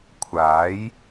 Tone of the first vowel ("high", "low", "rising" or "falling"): rising